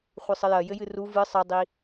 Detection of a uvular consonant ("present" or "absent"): present